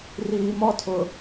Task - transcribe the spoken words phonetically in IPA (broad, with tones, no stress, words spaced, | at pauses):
riː˨mɔ˦tʰʊ˨